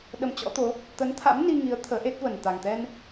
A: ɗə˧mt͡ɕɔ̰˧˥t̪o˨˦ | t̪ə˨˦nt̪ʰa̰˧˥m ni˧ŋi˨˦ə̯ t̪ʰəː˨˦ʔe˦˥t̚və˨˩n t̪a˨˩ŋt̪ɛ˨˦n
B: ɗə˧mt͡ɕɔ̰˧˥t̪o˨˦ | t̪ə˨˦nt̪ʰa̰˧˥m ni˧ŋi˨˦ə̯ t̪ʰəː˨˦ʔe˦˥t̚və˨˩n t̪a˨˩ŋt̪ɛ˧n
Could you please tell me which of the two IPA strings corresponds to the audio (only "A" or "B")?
B